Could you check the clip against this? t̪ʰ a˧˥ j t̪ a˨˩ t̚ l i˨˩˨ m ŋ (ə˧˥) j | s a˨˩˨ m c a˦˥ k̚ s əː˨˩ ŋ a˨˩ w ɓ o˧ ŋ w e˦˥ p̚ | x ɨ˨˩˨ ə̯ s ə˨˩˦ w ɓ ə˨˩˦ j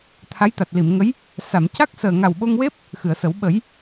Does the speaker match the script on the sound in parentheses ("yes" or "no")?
yes